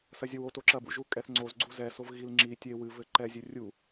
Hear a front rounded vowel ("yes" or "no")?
no